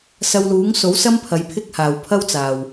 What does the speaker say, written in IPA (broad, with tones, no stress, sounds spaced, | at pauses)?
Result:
s ɐ˧ w l uː˨˥ ŋ s o˨˥ w s ɐ˥ m pʰ ɐ˨˧ j pʰ ɪ˥ k̚ h aː˨ w pʰ ɐ˥ w t͡s aː˨ w